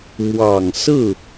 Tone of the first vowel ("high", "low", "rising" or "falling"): low